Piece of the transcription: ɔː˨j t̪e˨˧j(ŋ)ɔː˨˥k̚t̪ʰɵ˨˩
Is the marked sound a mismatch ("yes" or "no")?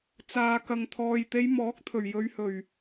yes